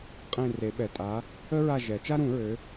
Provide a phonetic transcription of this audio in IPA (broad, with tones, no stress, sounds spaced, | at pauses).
qʼ ẽ˦˨ r e˨˩˦ ɓ ɛ˨˩ tʼ a˨˥ | ə˥ ɹ a˦˨ ʒ ɛ˨˩˦ t͡ʃ a˥ ɾ ũ˨˩˦ ɹ ø˨˥